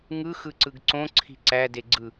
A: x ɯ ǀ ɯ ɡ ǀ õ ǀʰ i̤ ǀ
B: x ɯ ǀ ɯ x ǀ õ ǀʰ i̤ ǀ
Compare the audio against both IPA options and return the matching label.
A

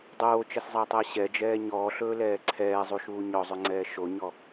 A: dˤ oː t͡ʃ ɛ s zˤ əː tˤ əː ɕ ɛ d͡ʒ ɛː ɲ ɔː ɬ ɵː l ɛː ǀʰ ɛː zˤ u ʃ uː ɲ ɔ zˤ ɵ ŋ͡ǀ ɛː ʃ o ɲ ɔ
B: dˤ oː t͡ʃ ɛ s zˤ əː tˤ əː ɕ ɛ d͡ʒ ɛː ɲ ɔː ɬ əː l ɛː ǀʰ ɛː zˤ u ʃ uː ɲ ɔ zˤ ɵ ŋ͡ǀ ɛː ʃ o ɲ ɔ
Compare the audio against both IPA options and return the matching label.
A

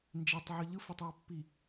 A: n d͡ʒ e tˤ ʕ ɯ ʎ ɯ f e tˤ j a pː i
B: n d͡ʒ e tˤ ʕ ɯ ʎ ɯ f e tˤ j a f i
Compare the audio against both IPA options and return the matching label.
A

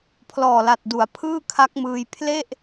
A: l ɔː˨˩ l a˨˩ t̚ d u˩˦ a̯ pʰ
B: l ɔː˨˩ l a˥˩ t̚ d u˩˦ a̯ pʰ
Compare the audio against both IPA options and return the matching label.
A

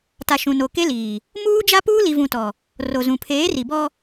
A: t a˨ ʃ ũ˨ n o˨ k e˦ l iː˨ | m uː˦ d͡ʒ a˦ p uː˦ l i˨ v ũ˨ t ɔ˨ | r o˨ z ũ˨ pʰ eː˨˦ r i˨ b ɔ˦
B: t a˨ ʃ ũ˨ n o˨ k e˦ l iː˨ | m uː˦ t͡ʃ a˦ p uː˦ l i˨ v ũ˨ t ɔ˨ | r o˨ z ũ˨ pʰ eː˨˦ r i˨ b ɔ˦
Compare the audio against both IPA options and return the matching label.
A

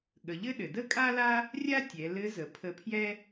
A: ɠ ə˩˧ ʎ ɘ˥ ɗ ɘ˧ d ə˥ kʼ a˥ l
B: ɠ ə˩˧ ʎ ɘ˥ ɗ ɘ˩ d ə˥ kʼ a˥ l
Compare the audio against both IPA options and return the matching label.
B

